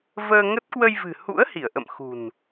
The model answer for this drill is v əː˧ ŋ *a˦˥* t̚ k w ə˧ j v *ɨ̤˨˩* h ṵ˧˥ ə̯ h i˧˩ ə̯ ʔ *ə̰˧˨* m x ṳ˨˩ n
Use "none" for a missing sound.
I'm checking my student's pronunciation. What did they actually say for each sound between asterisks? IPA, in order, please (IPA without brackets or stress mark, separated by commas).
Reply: ə˦˥, ɨ̤˨˩, ə̰˧˨